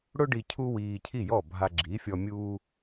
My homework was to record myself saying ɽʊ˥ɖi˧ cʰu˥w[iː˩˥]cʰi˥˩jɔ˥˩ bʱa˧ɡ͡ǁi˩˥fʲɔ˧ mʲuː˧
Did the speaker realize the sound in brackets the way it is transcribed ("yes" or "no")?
no